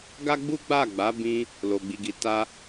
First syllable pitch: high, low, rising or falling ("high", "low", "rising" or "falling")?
high